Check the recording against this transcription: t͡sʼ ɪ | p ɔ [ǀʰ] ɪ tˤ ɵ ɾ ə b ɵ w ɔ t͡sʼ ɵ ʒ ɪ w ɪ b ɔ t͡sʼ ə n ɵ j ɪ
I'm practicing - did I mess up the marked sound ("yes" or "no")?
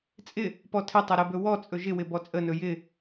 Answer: yes